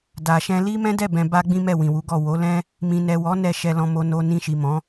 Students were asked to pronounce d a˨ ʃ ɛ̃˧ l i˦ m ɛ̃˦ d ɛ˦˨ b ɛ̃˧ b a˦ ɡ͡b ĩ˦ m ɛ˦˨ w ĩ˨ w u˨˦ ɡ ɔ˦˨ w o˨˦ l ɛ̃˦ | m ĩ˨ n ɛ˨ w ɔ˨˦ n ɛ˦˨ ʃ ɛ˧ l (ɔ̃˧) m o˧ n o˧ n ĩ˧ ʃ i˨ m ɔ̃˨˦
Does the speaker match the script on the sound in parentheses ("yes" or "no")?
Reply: yes